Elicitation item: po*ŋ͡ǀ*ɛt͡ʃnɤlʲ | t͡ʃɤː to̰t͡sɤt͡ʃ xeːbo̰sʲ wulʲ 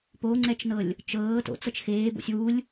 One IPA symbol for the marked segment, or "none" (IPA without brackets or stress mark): ŋ͡ǀ